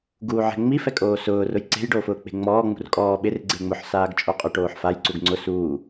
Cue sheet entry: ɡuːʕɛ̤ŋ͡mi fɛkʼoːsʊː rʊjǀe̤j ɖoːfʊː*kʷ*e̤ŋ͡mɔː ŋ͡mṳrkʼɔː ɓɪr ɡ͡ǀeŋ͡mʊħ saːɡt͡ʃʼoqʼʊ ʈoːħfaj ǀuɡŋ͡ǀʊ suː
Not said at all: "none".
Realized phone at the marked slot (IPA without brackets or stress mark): k͡p